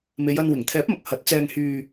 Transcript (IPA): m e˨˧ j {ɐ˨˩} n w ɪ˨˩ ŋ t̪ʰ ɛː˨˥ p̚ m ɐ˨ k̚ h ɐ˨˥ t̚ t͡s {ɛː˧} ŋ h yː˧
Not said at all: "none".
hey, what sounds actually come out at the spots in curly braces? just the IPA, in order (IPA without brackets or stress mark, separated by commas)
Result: ɐ˧, ɛː˧